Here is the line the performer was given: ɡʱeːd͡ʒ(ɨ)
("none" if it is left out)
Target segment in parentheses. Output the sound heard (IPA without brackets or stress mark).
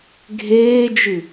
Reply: ɨ